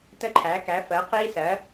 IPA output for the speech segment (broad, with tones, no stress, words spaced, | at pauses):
tə˦˥ǃʰæ˩˥ kæ˩˥fɜ˩˥ qi˦˥ sɜ˩˥